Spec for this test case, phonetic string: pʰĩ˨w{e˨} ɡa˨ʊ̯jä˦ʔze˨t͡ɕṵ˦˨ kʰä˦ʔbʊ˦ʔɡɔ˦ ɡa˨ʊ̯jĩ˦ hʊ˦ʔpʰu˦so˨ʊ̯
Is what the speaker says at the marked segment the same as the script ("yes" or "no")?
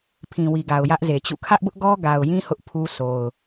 no